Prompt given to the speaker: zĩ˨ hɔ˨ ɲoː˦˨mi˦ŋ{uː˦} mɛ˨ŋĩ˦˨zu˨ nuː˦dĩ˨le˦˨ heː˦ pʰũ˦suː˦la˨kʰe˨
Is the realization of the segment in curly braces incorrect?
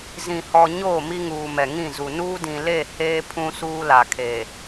yes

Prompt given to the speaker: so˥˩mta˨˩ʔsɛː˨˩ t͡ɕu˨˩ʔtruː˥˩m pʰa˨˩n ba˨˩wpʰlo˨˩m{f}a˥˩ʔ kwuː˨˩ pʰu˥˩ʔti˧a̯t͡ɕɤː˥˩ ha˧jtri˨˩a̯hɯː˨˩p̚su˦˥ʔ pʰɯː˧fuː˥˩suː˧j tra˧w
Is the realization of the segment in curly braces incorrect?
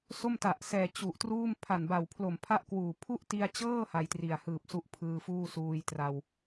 yes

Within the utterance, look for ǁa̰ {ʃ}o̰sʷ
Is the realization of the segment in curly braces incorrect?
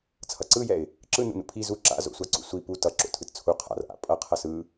yes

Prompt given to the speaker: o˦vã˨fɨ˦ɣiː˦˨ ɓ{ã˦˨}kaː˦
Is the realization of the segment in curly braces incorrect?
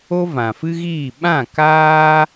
no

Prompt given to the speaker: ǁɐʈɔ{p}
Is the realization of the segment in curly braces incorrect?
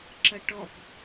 no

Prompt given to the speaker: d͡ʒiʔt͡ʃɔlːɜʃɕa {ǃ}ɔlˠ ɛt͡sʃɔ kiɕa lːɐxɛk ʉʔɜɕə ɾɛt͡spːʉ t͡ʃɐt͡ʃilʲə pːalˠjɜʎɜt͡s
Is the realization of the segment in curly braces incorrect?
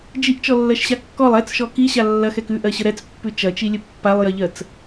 yes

